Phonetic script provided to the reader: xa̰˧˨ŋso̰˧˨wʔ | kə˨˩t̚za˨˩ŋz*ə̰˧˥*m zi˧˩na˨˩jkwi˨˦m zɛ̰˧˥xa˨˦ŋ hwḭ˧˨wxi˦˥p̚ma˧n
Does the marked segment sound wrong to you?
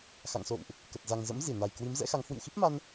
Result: no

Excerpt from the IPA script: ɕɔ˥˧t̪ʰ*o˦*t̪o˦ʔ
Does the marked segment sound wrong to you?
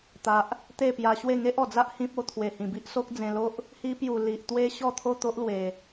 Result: yes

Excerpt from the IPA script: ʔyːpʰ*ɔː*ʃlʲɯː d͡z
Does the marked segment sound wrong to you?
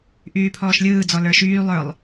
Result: no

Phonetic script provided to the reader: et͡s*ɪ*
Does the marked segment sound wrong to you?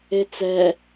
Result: yes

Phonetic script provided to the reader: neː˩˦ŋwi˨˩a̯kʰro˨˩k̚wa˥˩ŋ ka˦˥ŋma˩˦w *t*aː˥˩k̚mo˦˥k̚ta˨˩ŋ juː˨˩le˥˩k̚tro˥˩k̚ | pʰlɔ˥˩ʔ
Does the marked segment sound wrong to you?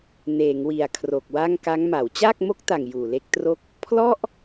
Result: yes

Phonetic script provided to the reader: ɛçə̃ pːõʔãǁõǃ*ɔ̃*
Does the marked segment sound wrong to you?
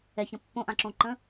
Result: yes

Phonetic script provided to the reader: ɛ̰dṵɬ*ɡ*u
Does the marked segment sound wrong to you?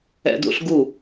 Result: no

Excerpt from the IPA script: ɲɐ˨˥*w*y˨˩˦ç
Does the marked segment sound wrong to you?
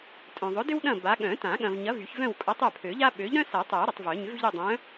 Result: yes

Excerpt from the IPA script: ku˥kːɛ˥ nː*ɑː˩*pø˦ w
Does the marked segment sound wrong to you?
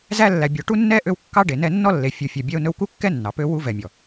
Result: yes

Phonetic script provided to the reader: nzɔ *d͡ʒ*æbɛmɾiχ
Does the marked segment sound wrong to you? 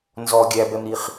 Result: yes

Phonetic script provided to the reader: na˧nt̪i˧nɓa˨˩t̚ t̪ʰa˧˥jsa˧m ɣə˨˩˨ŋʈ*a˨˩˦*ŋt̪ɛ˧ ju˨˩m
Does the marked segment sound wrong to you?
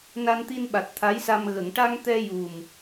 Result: yes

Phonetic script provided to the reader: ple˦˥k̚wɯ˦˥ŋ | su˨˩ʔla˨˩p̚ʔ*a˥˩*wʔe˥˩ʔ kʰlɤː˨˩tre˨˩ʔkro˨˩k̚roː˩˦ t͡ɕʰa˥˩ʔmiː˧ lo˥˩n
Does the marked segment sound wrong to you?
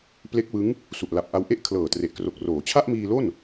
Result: yes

